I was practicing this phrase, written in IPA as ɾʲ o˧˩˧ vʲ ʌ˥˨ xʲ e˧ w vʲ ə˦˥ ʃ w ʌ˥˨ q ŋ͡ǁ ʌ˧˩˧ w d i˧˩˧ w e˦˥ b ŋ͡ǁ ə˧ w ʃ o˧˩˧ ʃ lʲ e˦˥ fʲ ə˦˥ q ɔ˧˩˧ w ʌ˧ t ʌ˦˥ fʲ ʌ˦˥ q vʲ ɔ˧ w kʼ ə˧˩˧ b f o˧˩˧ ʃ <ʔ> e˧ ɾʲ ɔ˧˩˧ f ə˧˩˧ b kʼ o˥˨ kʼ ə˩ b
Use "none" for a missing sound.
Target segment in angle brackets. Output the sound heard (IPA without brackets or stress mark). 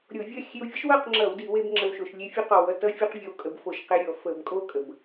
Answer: q